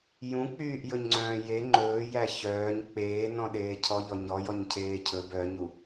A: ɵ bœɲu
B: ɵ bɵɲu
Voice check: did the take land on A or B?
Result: A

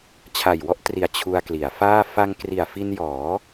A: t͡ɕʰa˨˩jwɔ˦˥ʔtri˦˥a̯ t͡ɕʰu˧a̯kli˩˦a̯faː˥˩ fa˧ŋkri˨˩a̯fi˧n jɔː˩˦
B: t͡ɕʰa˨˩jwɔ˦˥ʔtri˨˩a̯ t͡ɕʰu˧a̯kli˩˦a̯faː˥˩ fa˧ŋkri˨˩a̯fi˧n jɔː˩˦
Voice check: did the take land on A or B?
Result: B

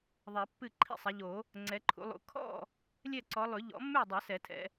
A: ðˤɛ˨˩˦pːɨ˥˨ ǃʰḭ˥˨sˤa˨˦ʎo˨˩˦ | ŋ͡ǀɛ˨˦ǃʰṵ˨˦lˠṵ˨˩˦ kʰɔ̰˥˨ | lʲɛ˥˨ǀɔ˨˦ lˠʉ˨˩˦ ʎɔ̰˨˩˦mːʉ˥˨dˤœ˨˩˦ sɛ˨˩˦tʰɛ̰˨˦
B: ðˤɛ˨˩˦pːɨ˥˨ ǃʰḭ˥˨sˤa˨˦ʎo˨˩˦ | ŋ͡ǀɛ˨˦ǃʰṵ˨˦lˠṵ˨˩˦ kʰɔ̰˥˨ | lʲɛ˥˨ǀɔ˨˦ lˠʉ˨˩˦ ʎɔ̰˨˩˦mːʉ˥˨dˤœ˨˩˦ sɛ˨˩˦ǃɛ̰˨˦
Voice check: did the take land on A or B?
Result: A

